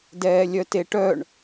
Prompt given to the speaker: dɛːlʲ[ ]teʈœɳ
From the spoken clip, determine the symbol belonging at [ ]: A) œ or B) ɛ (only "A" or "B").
A